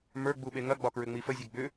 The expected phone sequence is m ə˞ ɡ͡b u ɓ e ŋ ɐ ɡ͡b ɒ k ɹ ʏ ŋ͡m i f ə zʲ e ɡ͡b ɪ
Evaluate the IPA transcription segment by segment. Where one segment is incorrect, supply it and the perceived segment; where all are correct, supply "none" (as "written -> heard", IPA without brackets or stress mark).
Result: ɪ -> ʏ